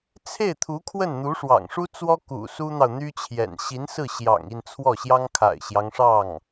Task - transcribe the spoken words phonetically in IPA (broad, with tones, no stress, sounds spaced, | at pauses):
t͡sʰ e˥˩ ɪ̯ t̪ʰ u˧˥ kʰ w ə˥˩ n n̪ u˧˥ ʂ w ɑ̰˨˩ ŋ ʂ u˥ t͡s w ɔ˥ k ṵ˨˩ s u˥ n̪ ɑ˨ ʊ̯ n̪ y˥ t͡ɕʰ j ɛ̰˨˩ n ɕ i˧˥ n s ɹ̩˥˩ ɕ j ɑ̰˨˩ ŋ i˥˧ n t͡sʰ w ɔ˥˩ ɕ j ɑ˥ ŋ kʰ a̰˨˩ ɪ̯ ɕ j ɑ˦ ŋ ʂ ɑ˥˩ ŋ